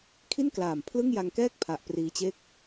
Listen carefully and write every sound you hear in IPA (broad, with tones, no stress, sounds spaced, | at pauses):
kʰ i˥˩ n k l aː˨˩ m pʰ l ɯ˥˩ ŋ j a˧ ŋ k ɛː˥˩ k̚ pʰ a˨˩ ʔ p r iː˧ t͡ɕ e˥˩ k̚